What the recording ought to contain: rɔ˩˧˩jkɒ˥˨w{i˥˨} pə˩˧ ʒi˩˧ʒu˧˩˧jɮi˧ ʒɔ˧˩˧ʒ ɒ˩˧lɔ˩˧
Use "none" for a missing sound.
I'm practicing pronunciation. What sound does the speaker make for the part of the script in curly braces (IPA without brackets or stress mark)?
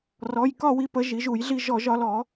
i˧